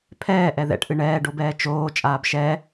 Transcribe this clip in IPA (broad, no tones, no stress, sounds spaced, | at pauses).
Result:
pʰ ɛː ʔ ɛ ð ɛ̰ ʈ ʔ ɨ ɳ ɛː ɖ o b ɛː t͡ʃ oː t͡ʃʼ aː b ʃ ɛ